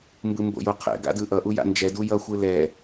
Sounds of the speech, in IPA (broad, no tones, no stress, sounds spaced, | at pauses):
m b ɯ m b o̰ j o qʰ ɛ̰ ɡ a̰ d ɯ ʔ ʌ ʔ u j a̰ n d͡ʒ ɛ d u j ʌ xʷ ɯ l ɛ